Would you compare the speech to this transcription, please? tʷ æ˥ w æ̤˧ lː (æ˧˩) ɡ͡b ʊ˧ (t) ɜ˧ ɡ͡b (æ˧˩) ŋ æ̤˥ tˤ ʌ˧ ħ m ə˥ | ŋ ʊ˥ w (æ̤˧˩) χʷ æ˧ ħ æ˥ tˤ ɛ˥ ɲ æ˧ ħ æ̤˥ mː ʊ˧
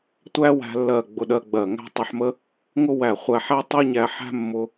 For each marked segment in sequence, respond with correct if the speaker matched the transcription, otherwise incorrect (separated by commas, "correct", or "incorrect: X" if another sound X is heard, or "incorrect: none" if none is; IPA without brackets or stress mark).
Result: incorrect: ɜ˧˩, incorrect: ɗ, incorrect: ɜ˧˩, incorrect: æ˧˩